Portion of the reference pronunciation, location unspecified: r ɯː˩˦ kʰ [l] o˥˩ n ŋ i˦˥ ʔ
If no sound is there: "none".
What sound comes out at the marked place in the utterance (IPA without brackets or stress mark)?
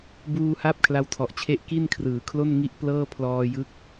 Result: l